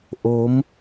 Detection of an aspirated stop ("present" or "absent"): absent